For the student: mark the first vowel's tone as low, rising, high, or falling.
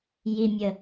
low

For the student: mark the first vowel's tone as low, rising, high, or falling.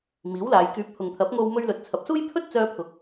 rising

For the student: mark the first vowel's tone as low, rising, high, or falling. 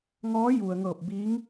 rising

